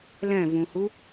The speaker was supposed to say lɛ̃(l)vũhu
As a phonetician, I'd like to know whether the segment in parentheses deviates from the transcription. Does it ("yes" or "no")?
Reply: yes